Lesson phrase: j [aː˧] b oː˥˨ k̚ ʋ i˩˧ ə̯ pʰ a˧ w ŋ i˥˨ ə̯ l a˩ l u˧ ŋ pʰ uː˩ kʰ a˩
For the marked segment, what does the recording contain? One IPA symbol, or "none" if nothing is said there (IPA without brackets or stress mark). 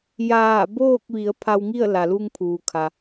aː˧˩